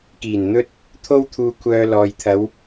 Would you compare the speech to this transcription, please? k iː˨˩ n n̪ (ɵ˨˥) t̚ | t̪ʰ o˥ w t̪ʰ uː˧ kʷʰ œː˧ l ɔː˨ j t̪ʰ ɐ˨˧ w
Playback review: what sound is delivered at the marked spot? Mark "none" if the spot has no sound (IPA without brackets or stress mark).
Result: ɵ˥